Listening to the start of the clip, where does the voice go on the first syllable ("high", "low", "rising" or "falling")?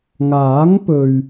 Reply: rising